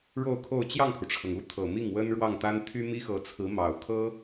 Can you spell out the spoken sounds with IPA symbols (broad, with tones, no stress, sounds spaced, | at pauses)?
ɻ o˥˧ ʊ̯ kʰ o˥˧ ʊ̯ t͡ɕ j ɑ˥˩ ŋ kʰ u˩ ʈ͡ʂʰ ɤ˩ ŋ u˥˩ t̪ʰ ɤ˨˩ m i˥˩ ŋ w ə˥ n ɻ w ɑ˥˩ ŋ t̪ a˥ n t̪ʰ y˥ m i˥ x ɤ˧˥ t͡sʰ ɹ̩˧˥ m ɑ˨˩ ʊ̯ kʰ ɤ˥